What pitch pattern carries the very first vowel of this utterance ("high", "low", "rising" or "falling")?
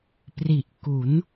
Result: low